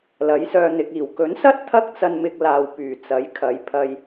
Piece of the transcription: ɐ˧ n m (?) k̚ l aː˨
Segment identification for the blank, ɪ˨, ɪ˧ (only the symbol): ɪ˧